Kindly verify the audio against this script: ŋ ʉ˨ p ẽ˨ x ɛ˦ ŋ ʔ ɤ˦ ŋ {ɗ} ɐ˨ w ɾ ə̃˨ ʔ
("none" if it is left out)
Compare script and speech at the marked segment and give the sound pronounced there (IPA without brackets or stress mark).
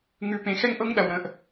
ɗ